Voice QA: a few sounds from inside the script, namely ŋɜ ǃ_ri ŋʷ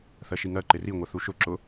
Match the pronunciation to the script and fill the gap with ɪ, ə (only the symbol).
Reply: ɪ